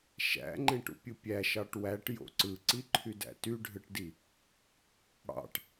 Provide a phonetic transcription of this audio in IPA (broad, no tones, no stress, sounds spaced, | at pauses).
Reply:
ʃ æ̰ ŋ͡ǃ ẽ ʈ ṵ pʲ ɯ pʲ æ ʃ ɑ ʈ w æ ʈ j o̰ ǀ ɯ ǀ i ǃʰ y d æ̰ t y ɖʱ ɯ ʈ d i | ɽ ɑ̰ ʈ